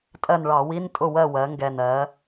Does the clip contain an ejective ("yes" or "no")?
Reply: yes